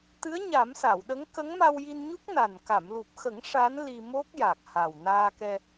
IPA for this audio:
t̪ ɨ˧˥ ə̯ ɲ a˨˩˦ m s a˨˩˨ w ɗ ə˧˥ ŋ k ə˧˥ ŋ m a˧ w j i˧ n ɲ u˦˥ k̚ n a˨˩ n k a˨˩˨ m l u˨˩ p̚ x ə˨˩˦ ŋ ʂ a˧˥ n l i˧ m o˦˥ k̚ j a˨˩ k̚ h a˨˩ w n aː˧ k ɛ˧

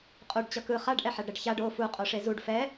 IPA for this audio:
qʼ u ɖ t͡ɕ ʌ k ɯ χ a ɖ ʔ ɛ ħ a ɖ ɾ ɛ ɖ ç a ɖ o f u qʼ o ʂ e z u ɖ f ɛ

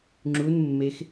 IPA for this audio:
ŋ͡ǁ u n mː e x

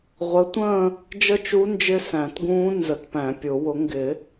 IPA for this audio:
ʁʷ ə˨˥ tʷ ə̃ː˥˧ | d͡ʒ ə˥˧ t͡ʃ u˦˥ n d͡ʒ ɪ˦˥ s æ̃˨˩˦ t ɡ ũː˦˥ n z ə˨˥ t p æ̃˨˩˦ pʲ ʊ˨˩˦ w ʊ˨˥ ŋ ɡ ɪ˨˩˦

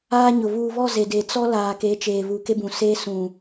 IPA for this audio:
aː˦ ɲ ʊ˨ β uː˨ β ɔ˦˨ z e˨ d e˨ t͡s ɔ˦ l aː˨ k e˨˦ t͡ʃ eː˨ β u˨ k e˦ b ũ˨ s eː˦ s ũ˨

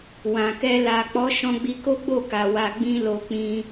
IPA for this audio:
w ã˨ k ɛ˧ l a˨ k͡p ɔ˨˦ ʃ ɔ̃˧ ɡ͡b i˧ k o˦ ɡ͡b o˦˨ k a˨ w a˧ ɡ͡b ĩ˦ l o˧ k͡p ĩ˧

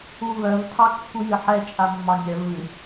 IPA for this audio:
u β œ v tʰ ɑ kː u j ɨ ħ ɛ t͡ʃʼ a mː ɑ nʲ œ v ɨ

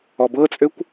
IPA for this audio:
ɔ b ɤ t͡sʼ ø kʷ

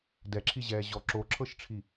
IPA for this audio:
d ɛ ǁʰ i ʑ ɛː ʑ ɔ ǁ o ǁʰ ɤ ʃ ʈ͡ʂʰ i

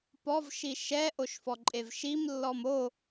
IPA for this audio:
p ɔ v ʃ i ʃ ɛ ʔ o ʃ f ɔ ǃʼ e v ʃ i m lː ɔ m o

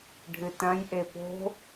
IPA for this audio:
ɖʱ ɨ t ɐ̃ j ʔ e p o̤

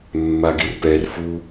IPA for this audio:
mː a ɡ i r p ɛ r f u

